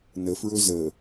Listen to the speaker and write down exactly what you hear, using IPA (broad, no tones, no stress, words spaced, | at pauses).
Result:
nəfɹɵ zə